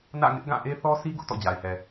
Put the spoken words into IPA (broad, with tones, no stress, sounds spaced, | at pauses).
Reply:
n ä̰˦˨ ŋ ɪ˦ ʔ ɡ ã˦˨ ʔ e˦ θ ɔ˦ s i˦ ɡ ʊ˦ ʔ t ɔ̰˦˨ d͡ʑ a˨ ɪ̯ h ɛ˨